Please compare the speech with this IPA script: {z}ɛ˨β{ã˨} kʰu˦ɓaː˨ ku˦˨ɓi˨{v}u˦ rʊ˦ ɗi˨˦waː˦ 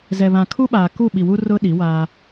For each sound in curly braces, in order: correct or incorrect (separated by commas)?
correct, correct, incorrect